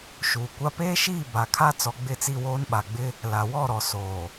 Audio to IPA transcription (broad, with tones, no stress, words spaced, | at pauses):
ʃuː˨kʷa˦ peː˦ʃiː˦˨ ba˨kʰa˦ t͡sɔ˨ɡ͡bɪ˦˨t͡si˦˨ woː˦nɓa˨ɡ͡bɪ˦ | la˨wɔ˦˨ ɾɔ˨soː˨